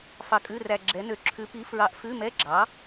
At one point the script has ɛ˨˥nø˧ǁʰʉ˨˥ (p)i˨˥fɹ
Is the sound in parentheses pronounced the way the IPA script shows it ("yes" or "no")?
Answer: yes